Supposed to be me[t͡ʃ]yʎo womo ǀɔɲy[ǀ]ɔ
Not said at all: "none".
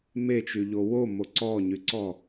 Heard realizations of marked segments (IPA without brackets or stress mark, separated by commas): t͡ʃ, ǀ